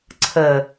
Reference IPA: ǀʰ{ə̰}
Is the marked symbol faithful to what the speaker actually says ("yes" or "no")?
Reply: no